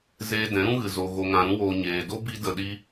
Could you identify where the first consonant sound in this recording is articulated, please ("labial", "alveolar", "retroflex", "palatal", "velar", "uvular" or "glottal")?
alveolar